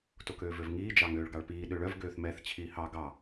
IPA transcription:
tokøːvøvŋiː d͡ʒɑŋøːɭɡɑɭpiː ɗøɭœv ɡøːθmɛθ t͡ɕʰiːhɑ ɡɑ

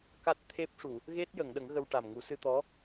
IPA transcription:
ka˦˥t̚t̪ʰe˦˥p̚ʂu˨˩˨ | ɣe˦˥t̚ jə˨˩˨ŋɗə˨˩˦ŋ ɣə˧wʈa˨˩m ŋu˨˩˦sɨ˧ t̪ɔ˧˥

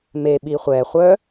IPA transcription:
me ɓiχʷɛ χʷœ

